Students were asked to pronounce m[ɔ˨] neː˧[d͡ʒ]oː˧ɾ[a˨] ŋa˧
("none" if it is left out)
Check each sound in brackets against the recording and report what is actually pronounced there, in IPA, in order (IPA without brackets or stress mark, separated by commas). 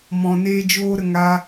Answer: ɔ̃˨, d͡ʒ, ə˨